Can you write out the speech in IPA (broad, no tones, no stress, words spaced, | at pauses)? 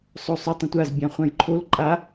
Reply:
sˤosˤʊ tˤə̃tʷaz bʲãχʷãjǃʰol ǃʼa